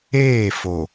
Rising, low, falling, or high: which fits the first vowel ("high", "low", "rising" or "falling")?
falling